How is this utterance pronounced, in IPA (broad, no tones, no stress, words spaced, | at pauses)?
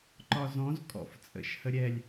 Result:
ǃɒzɔ̃z kʼɔ̰ft͡sʼə̰ʃhə ɾʲɛlʲ